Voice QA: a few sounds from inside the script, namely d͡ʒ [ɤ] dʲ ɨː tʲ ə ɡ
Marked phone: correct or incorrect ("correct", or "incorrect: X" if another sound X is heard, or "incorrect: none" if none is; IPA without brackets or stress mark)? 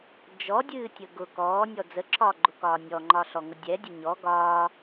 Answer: incorrect: ɔ